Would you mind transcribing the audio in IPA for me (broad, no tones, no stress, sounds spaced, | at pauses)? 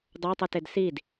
dˤ o tˤ ɯ t e d s i d